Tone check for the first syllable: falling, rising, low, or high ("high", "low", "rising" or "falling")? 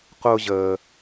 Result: low